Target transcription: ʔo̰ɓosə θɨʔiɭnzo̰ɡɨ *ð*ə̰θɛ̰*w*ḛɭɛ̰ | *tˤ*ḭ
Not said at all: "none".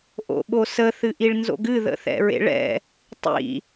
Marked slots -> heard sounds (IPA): ð, ɹ, tˤ

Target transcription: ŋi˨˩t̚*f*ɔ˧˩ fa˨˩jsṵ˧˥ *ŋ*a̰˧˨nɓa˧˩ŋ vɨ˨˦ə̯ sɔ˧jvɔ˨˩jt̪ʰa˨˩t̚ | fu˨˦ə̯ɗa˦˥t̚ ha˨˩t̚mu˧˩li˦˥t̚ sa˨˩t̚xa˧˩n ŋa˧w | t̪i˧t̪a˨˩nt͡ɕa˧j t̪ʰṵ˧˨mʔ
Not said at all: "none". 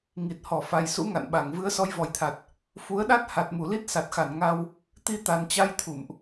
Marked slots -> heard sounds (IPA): h, ŋ

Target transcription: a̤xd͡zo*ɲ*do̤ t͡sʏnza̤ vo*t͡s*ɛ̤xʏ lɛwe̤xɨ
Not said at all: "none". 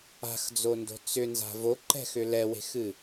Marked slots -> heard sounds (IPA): n, ǃ

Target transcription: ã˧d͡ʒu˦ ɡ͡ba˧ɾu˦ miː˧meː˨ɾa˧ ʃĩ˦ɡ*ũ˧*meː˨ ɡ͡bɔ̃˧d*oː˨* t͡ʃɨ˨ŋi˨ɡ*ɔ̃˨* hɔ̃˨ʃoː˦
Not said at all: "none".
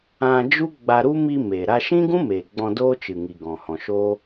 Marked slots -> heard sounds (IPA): ũ˦, oː˦, ɔ̃˨

